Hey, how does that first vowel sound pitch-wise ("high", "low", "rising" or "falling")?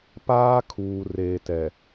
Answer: high